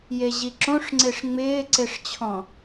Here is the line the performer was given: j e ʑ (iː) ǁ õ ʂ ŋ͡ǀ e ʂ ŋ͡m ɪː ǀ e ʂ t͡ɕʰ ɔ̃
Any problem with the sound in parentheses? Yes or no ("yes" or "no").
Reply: yes